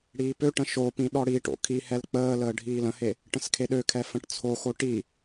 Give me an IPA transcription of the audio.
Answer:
ɽiːpøʈə̃ ʃopĩ ɗɔɽiʈo̰ kʰihɛl k͡pəːləː ɖʱiːlə̃he | ʈə̃skʰeɗøkʰɛ fə̃ʈt͡sʰoxo ʈi

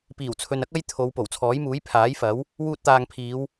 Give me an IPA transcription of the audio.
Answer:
piː˨˩wt͡sʰɵ˨nɐ˥k̚ ɐ˥jt̪ʰo˨˧w po˨˩wt͡sʰɔː˨˥jmuː˨˥j pʰaː˨˥jfɐ˨˥w | wuː˧t̚t̪aː˨ŋpʰiː˨˧w

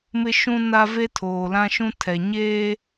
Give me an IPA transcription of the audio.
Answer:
mɪ˦ʃũ˦na˦ ve˦tʰoː˨lã˦ʃũ˦ tʰɛ˨ɲeː˦

